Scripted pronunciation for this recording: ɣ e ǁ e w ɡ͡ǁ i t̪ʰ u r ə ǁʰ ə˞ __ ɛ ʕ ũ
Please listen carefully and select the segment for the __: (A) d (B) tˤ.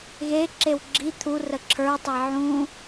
B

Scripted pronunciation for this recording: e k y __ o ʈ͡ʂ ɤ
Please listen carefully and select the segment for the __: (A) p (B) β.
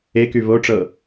B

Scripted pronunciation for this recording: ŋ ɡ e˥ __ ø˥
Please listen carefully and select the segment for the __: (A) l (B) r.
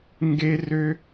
B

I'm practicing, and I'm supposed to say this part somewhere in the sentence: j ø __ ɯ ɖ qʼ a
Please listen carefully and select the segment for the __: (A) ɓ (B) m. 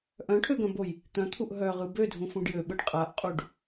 A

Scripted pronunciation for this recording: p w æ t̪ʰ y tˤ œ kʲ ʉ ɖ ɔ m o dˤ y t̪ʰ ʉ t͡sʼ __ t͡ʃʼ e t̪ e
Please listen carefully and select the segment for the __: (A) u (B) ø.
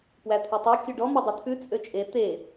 B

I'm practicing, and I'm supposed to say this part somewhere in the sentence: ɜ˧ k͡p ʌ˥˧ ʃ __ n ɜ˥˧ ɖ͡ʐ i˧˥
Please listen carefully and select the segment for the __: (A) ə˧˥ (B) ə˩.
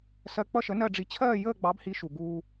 A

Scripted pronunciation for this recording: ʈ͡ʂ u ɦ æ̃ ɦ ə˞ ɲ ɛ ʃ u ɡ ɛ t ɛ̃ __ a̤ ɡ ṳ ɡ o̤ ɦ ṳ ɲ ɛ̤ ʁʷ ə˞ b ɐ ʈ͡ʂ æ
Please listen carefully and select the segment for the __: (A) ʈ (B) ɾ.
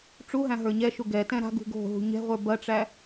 B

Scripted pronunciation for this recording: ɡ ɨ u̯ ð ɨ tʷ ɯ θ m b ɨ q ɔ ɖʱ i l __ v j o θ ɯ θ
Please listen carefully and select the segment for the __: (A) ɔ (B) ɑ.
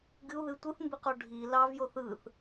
B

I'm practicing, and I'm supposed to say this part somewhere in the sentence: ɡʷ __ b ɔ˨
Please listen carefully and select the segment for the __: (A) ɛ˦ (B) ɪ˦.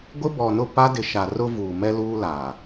B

